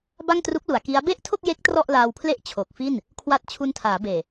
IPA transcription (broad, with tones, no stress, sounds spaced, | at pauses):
b a˥˩ ŋ t r u˦˥ k̚ l u˩˦ a̯ k i˦˥ a̯ b e˥˩ ʔ tʰ o˥˩ k̚ j e˦˥ k̚ t r ɔ˥˩ ʔ l aː˧ w pʰ l e˥˩ ʔ t͡ɕʰ o˨˩ k̚ f i˥˩ n | kʰ w a˥˩ t̚ t͡ɕʰ u˧ n tʰ aː˩˦ b eː˨˩